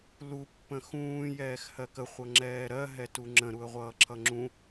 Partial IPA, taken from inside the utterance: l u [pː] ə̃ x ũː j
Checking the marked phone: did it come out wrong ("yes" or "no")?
no